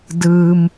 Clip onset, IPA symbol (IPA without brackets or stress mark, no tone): d